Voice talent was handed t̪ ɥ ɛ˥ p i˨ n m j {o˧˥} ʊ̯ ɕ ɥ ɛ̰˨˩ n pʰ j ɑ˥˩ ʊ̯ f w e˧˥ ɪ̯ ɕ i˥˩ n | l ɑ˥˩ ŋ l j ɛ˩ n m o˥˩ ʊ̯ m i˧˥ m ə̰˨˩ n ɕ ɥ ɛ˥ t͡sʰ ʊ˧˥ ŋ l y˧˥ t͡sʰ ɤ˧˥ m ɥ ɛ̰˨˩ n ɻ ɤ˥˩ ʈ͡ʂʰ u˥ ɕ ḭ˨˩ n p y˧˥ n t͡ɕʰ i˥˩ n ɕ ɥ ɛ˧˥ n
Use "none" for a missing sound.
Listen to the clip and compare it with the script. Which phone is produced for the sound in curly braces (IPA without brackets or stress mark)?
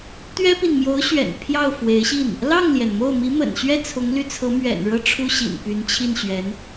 o˧˥